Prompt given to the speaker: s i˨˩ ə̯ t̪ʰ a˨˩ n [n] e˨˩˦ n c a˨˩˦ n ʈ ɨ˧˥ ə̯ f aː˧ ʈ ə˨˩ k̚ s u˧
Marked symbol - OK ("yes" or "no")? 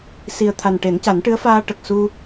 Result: no